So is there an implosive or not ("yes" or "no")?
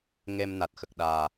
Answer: yes